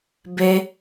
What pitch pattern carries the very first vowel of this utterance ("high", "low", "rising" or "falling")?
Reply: high